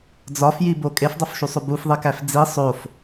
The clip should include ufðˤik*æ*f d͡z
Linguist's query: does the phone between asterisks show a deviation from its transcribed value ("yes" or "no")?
no